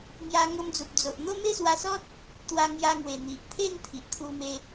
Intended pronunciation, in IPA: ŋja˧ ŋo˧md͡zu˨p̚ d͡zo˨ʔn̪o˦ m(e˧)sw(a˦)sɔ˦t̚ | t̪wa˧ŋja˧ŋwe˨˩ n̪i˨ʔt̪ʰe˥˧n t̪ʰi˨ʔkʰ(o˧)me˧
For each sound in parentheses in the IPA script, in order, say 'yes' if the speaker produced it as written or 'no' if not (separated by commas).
no, no, no